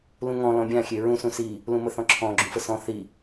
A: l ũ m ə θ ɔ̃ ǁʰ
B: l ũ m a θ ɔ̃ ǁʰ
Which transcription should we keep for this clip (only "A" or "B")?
A